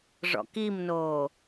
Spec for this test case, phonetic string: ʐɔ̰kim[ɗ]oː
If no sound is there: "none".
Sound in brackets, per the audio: n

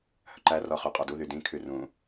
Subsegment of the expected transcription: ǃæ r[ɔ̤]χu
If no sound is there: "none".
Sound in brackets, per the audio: ɔ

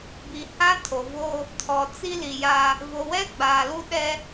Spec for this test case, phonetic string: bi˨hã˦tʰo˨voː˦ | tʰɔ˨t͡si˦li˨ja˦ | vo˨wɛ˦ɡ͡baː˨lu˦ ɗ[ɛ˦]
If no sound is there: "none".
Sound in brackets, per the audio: ɛ˦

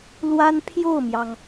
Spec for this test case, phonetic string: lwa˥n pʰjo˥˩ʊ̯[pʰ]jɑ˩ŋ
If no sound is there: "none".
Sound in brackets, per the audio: m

